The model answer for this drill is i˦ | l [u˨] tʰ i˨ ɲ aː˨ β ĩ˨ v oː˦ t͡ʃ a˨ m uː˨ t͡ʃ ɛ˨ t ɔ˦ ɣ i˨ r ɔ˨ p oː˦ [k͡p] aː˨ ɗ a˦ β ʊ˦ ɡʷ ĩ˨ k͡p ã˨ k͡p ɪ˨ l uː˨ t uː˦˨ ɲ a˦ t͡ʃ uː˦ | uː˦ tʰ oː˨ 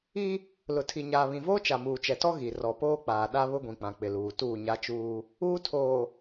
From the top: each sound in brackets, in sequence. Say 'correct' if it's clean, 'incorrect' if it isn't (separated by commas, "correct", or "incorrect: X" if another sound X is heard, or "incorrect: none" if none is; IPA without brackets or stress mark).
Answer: incorrect: ʊ˨, correct